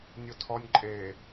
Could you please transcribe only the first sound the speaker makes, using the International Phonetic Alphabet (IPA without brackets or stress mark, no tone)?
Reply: nʲ